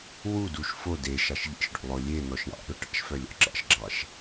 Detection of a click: present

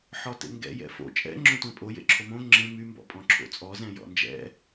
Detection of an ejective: present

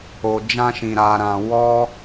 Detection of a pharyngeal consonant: absent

